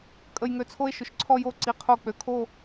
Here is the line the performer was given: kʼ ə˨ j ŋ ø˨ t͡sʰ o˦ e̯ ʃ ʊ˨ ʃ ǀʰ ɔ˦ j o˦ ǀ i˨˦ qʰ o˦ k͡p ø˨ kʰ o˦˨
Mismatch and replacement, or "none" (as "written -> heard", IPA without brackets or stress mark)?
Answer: none